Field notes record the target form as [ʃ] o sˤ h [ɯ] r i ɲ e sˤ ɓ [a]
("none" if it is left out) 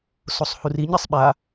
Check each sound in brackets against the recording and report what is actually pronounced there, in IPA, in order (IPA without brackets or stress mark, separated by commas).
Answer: s, u, a